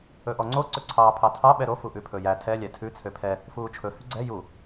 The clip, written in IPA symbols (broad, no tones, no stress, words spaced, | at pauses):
ɵʔɔŋ͡ǀo ǀɵǀʰɑːpʰɑtʰɑ ɓɛɾo fuʔʉpʰɵjæ tʰɛ lʲætʰʉ t͡sʰøpʰɛ | fuːt͡ʃʰɵ hyɡ͡ǀɛ ju